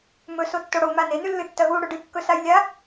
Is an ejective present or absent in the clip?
absent